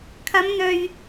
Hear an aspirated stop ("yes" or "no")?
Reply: yes